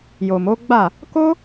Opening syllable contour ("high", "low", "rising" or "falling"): low